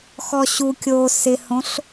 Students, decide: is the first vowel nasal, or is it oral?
oral